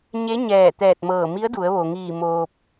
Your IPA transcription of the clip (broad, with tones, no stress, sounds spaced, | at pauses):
ɲ e˧˥ ɲ ɛː˧˩ t̪ ɛː˧˩ t̚ m ɤː˧˩ m i˧˥ ə̯ d u˩˧ ə̯ ʋ o˩ ŋ iː˧˩ m oː˧ p̚